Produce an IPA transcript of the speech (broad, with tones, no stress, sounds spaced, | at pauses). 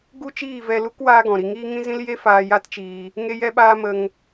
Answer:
ɡ u˦ t͡ʃ iː˦˨ v ɛ˧ l u˦ k w aː˦ ɡ ɔ̃˨ ɾ i˧ ŋ iː˦ ŋ ĩ˦ z ĩ˦ l j e˦ f aː˧ j a˦ t t͡ʃ iː˧ | ŋ e˧ j ɛ˧ ɓ aː˧ m ə˧ ŋ